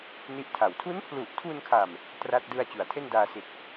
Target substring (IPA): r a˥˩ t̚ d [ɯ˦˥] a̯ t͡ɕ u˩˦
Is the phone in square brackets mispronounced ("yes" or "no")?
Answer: yes